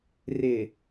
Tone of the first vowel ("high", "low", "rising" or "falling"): low